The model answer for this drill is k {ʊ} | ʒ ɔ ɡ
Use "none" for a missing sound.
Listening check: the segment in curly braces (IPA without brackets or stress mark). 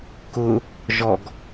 ʊ